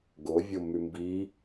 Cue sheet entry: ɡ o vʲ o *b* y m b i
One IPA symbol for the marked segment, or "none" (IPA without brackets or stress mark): m